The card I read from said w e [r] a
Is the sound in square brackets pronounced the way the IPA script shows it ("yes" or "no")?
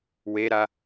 no